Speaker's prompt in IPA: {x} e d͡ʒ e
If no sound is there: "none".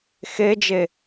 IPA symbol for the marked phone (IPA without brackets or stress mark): x